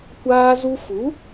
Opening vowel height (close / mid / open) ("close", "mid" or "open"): open